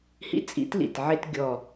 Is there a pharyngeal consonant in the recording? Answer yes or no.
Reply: yes